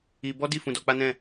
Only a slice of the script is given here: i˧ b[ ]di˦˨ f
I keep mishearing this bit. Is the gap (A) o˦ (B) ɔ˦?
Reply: B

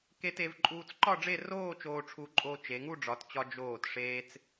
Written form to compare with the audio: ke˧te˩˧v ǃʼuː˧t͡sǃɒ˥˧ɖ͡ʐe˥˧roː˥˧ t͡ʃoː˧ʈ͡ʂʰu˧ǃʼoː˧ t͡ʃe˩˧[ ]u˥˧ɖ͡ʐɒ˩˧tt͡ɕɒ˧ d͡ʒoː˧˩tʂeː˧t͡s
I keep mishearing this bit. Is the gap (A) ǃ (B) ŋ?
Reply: B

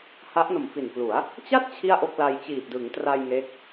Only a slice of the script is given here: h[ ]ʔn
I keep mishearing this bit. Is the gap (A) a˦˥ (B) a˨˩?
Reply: A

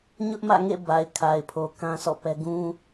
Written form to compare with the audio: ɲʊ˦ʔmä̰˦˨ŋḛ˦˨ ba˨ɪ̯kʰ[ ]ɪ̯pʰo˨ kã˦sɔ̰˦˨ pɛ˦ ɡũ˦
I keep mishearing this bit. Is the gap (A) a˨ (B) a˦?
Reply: A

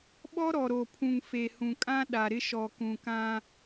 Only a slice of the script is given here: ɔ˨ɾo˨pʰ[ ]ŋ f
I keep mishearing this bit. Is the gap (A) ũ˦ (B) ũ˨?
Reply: B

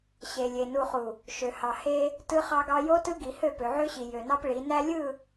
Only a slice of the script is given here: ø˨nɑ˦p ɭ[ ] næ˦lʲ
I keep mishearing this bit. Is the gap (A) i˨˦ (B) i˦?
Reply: A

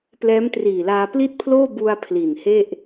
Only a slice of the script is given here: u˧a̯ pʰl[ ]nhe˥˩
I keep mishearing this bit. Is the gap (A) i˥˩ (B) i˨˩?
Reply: B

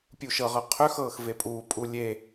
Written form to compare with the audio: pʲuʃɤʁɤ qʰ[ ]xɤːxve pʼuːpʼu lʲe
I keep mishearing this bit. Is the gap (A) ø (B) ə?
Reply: A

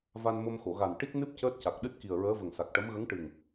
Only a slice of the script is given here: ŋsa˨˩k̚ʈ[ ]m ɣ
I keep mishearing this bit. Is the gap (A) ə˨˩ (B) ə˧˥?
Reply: B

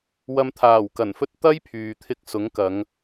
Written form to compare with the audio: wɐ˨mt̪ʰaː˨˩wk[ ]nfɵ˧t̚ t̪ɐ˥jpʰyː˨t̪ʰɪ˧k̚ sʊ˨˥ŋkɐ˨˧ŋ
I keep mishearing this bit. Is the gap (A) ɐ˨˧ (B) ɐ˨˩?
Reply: B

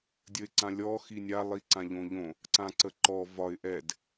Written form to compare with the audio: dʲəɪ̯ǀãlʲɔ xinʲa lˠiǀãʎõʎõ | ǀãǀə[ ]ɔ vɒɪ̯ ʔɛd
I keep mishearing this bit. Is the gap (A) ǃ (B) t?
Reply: A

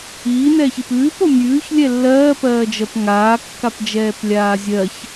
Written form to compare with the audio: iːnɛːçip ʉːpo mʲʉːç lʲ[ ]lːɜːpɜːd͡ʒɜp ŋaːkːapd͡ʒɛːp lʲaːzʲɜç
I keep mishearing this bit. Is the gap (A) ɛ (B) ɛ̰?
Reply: A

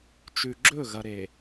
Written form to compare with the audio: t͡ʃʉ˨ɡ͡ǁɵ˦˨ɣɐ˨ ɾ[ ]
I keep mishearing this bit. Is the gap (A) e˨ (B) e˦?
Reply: A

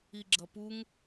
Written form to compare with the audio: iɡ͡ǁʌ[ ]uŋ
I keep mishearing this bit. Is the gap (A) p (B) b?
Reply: A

